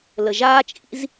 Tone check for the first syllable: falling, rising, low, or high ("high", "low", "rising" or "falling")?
low